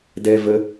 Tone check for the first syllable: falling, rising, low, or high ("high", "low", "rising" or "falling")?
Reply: high